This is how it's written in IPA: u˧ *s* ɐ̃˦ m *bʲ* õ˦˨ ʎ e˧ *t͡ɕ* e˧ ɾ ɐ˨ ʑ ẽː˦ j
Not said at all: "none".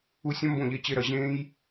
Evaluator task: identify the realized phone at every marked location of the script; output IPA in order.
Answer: sʲ, b, t͡ɕ

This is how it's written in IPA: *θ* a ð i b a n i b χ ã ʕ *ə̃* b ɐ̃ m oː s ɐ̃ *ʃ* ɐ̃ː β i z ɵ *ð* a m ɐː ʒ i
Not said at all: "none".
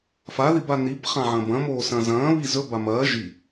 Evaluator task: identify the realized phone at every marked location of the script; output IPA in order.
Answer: f, ɐ̃, z, b

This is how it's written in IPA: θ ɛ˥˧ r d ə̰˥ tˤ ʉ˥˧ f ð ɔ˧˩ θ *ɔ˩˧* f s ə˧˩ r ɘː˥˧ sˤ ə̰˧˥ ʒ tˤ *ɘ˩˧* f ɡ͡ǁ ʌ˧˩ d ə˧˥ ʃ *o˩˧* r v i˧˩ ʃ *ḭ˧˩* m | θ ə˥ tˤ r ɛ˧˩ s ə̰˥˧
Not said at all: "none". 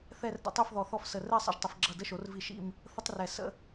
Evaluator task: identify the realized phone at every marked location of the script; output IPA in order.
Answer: ɔ˥˧, ɘ˩˧, o˩˧, ḭ˥˧

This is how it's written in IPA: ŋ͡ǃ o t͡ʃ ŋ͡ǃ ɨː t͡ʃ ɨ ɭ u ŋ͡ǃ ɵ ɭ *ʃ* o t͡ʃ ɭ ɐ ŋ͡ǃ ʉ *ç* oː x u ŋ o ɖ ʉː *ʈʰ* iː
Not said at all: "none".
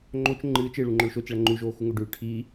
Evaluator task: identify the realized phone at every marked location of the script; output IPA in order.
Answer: ʃ, ʒ, ʈʰ

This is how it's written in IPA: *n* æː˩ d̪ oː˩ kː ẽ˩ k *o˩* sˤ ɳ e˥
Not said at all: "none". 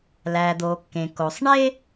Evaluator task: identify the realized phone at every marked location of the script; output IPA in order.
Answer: l, o˩

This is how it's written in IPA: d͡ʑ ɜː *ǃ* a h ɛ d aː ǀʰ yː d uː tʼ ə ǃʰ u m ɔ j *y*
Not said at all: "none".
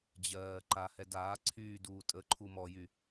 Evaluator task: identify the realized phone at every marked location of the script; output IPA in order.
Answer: ǃ, y

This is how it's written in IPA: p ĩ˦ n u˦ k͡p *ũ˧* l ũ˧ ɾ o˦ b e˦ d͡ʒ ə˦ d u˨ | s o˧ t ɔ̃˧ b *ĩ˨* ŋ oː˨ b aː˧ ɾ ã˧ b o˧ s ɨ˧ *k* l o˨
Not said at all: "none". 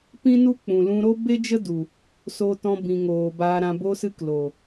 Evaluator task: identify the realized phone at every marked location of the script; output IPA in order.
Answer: ũ˨, ĩ˨, k

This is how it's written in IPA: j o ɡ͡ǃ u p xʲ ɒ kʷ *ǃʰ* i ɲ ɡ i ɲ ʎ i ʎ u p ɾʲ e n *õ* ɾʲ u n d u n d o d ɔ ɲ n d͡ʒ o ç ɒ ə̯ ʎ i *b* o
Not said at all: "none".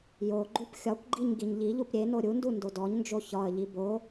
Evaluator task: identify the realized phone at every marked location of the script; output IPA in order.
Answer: ɡ͡ǃ, o, b

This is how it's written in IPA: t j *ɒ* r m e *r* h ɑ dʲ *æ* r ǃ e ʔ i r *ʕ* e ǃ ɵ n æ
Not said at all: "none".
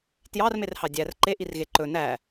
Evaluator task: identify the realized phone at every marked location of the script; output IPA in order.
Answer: ɑ, r, æ, ɣ

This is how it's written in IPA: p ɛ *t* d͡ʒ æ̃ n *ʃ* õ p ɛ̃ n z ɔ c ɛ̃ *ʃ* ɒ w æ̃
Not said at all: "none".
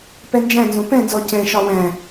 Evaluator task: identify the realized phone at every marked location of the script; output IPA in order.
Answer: n, z, ʃ

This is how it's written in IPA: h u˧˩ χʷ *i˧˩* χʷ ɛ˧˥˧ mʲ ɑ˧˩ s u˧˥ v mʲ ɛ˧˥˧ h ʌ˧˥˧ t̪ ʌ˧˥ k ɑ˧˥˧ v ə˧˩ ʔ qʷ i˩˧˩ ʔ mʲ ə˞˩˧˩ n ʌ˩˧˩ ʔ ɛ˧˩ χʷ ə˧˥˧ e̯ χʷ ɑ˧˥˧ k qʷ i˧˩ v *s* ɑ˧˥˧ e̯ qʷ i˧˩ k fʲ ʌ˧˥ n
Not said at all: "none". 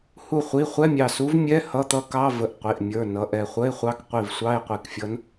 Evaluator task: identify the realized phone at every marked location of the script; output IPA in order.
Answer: i˩˧˩, sʷ

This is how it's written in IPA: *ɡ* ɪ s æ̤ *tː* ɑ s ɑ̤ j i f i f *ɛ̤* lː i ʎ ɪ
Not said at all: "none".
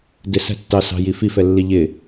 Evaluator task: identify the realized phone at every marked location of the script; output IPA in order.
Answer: d, tː, ɛ

